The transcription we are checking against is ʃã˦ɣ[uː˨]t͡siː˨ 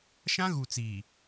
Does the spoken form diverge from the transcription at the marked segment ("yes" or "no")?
yes